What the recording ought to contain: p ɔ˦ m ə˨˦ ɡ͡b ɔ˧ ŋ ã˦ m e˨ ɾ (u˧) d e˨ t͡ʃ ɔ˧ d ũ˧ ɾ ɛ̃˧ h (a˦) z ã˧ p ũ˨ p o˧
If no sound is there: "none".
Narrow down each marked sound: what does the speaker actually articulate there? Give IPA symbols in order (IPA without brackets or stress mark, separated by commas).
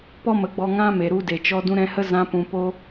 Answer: u˧, ə˦